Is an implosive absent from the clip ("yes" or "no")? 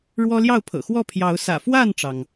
yes